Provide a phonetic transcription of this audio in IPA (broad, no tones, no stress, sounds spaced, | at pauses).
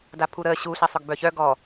d a pʰ u ɾ əː ɕ u ɬ ɛ sˤ œ ɡ b œ ç œ ɡ ɔ